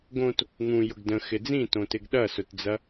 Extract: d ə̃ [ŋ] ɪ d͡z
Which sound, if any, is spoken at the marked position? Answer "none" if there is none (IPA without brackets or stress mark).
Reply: x